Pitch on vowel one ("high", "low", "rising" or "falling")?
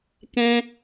high